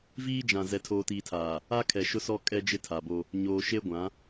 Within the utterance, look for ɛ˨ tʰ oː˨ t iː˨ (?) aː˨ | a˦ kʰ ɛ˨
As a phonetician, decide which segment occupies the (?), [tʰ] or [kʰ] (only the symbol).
tʰ